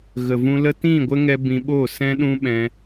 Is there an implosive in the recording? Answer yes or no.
yes